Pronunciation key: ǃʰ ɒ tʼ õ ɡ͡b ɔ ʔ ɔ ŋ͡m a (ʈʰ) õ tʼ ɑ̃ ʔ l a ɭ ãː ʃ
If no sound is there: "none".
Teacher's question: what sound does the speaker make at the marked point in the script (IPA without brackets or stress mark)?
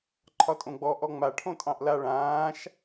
ʈʰ